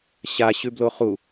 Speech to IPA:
ɕ a ɕ ʉ b l o χ u

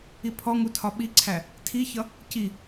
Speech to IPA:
i pʰ ɔ ŋ u tʰ ɒ ɓ i ǀʰ æ | tʰ i ç ʌ | c i

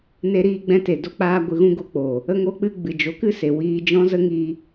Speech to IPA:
n e˧ ɾ iː˧ ɡ͡b ɛ̃˧ t e˨ d o˧ k͡p aː˧ ɡʷ ɨ˧ ɣ ũ˦ ɡ o˦ k͡p o˨ | ə˧ ŋ o˧ k͡p ɨ˧ ɡ͡b ɨ˨ d͡ʒ o˨˦ k ɨ˦ s e˨ w iː˧ d͡ʒ ɔ̃˦ z ə˦ ŋ i˧

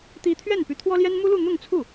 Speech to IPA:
t̪ i˧˥ t̪ʰ ɥ ɛ˥˩ n p y˧˥ t̪ʰ w ɔ˥ l j ɛ˥ n m u˥ l u˥˧ n̪ ʊ˥˧ ŋ t͡sʰ u˥˩

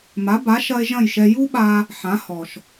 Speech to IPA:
m a˩˥ b a˩˥ ʃ ɐ˧ e̯ ʒ ɐ̃˥˩ j ʃ ɛ˧ j u˥ ɓ a˧ | ħ ã˩˥ h ɔ˩ ʃ

